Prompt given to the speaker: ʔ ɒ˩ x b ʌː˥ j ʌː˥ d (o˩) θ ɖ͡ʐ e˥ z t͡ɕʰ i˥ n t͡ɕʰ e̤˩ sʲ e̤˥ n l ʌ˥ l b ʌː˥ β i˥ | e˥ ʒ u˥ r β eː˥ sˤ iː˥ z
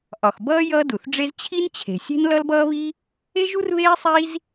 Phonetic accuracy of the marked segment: incorrect: u˩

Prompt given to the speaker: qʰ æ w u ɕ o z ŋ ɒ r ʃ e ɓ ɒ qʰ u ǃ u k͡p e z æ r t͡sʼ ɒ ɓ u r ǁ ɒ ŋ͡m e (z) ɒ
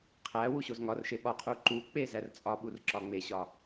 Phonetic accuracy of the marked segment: incorrect: ɕ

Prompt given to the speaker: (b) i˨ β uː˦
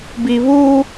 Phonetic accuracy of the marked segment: correct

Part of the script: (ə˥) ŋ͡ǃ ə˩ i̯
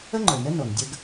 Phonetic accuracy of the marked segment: correct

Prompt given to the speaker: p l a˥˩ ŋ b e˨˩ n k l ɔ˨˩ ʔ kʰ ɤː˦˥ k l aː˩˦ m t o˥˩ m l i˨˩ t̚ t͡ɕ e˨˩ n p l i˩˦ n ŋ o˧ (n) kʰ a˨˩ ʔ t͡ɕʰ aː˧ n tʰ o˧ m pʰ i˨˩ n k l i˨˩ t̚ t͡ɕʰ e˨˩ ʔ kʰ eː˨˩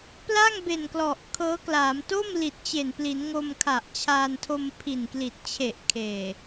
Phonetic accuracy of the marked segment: incorrect: m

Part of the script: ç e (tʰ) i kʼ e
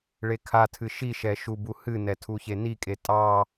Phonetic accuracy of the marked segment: incorrect: n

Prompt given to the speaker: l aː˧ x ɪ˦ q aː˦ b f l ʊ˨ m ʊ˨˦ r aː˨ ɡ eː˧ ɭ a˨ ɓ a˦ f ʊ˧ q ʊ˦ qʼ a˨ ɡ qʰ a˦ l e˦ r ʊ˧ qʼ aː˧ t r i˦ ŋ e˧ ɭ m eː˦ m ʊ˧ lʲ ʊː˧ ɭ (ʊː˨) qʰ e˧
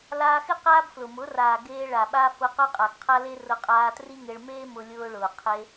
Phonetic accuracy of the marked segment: correct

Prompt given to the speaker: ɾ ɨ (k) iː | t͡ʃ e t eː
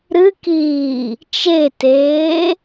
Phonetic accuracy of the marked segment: correct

